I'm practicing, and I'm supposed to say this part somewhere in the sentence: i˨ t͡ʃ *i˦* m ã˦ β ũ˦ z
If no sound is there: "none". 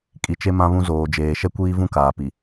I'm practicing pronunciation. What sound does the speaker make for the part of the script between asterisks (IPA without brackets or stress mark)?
e˦